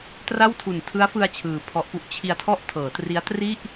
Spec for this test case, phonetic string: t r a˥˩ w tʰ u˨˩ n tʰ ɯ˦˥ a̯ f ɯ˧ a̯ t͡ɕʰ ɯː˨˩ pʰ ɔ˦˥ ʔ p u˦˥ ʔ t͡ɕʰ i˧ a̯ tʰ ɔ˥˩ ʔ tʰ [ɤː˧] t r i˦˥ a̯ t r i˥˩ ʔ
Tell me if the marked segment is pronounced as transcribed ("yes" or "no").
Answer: no